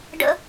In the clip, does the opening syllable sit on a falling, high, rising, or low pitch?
high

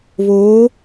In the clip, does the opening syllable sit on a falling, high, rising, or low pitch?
rising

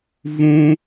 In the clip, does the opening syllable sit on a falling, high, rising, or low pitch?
high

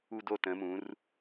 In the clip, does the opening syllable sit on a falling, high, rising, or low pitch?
falling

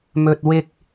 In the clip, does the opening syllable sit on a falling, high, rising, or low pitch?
low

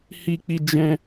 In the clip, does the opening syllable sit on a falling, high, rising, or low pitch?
high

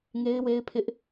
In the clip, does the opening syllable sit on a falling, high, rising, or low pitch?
high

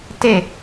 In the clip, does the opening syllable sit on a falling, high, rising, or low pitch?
falling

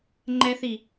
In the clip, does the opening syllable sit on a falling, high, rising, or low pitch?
high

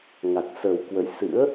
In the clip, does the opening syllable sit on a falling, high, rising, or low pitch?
low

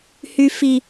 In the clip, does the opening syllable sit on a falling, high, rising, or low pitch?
low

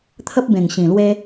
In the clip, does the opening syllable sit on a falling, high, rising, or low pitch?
high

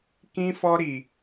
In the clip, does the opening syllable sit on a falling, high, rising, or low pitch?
high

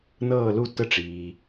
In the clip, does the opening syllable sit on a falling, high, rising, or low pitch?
falling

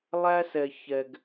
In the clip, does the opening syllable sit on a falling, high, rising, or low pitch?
high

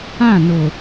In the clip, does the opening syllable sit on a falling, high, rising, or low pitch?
falling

